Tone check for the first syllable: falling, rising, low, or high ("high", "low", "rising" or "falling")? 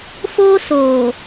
high